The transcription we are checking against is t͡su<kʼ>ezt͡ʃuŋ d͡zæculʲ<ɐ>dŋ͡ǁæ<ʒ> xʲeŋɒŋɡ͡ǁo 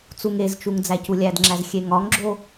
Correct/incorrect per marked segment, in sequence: incorrect, incorrect, incorrect

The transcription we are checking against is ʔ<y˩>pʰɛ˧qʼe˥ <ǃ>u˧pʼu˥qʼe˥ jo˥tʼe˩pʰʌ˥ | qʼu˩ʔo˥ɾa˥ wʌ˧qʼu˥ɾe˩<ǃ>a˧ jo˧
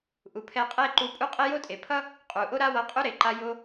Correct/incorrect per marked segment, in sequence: incorrect, correct, correct

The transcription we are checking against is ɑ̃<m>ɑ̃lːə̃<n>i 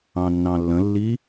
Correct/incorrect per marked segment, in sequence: incorrect, incorrect

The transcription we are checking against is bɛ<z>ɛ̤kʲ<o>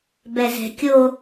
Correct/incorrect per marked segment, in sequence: correct, correct

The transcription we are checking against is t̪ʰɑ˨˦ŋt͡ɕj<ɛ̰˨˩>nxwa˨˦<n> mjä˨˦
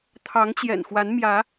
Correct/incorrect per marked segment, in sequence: correct, correct

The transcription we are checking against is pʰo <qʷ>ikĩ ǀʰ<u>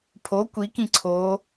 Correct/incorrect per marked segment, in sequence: incorrect, incorrect

